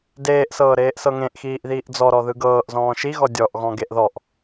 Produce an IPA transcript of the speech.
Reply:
d eː ʔ s ɤː ɾ eː ʔ s ɤ ŋ ẽ ʔ x iː ʔ ð iː ʔ d͡z ɔ ɾ ɔ ð ɯ ɡ ɤː ʔ z ɔ̃ː ʃ i ɣ ɔ dʲ ɔ ʔ ɣ ɔ̃ ɡ e ʔ ð ɔ ʔ

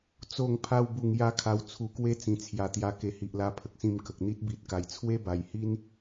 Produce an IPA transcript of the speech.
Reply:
t͡s o˧ ŋ pʰ a˧ w b u˨˩ ŋ j a˦ kʰ a˧ w t͡sʰ u˧ k w e˥˧ t͡s ĩ˨˩ t͡sʰ j a˨˩ t̪ j a˧ k e˨˩ h i˨ ʔ l a˧ pʰ ə˨ k̚ s ĩ˧ m k ə˨ k̚ n̪ i˦ t̚ b i˨ t̚ k a˨˩ j t͡sʰ w e˦ b a˨˩ j h i˦ n

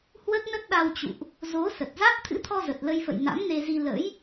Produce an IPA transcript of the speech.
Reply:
h w ə˦˥ t̚ n ə˦˥ t̚ ɗ a˧ w t͡ɕ ṵ˧˨ ʔ | z o˨˦ s ə˨˩ t̚ z a˦˥ t̚ t̪ʰ ɨ̰˧˥ t̪ʰ ɔ˧ z ə˨˩ t̚ l ə˧ j f ə̰˧˨ j n a̰˧˥ m n e˧ z i˧ l ə̰˧˥ j

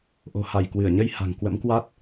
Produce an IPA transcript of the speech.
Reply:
ʔ o̤˨˩ h a˧˩ j k w ɨ˧˩ ə̯ ɲ ə˧ j h a̤˨˩ ŋ k w ə̰˧˥ m k w a˦˥ t̚

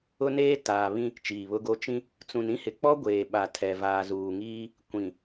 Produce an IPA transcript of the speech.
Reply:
ʊ˦ n eː˦ t aː˨ β ĩ˦ | t͡ʃ iː˨ β ʊ˦ ɡ o˦ t͡ʃ ĩ˦ | t͡s ũ˨ n ĩ˦ h ɪ˨ k͡p ɔ˦ ɡʷ eː˨ ɓ a˨ tʰ ɛ˨ v aː˨ z uː˨ ŋ iː˦ | kʷ ĩ˨

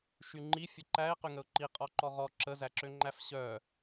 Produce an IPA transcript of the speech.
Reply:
ʃ y ŋ͡ǃ i fʲ ə ǃ æ ɪ̯ q y ŋ ə ʊ̯ ǃ i qʼ ɔ ǃ ɔ ʁ ɔ ǁ ə z æ ǁ ø ŋ͡ǃ æ f ɕ œ

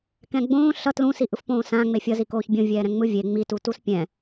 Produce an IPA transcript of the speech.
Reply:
k ɛ̃ ɡ͡b õː ɬ ʌ t l ũ s i ʔ ɯ f p õː s ã ŋ͡m e fʲ ʌ z i k oː ç bʲ õ vʲ ɛː ɾ ɛ̃ ŋ͡m ɯ vʲ e ŋ͡m i t u t u s pʲ ɛ̃

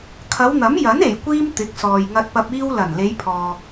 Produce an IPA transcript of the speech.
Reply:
kʰ ɐ˨˧ w n̪ ɐ˨˥ m j ɐ˨˥ n e˨˩ j kʷ iː˧ m t̪ ɪ˨˥ k̚ s ɔː˨ j ŋ ɐ˧ t̚ p ɐ˧ p̚ iː˧ w l ɐ˨˩ n l e˨˧ j pʰ ɔː˨

